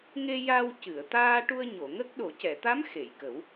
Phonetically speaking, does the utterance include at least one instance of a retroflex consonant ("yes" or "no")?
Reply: yes